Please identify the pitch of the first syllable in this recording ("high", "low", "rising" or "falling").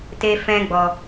high